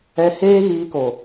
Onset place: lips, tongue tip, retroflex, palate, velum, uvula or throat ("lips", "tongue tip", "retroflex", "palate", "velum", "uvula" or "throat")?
throat